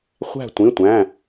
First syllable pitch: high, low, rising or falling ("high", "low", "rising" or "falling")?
falling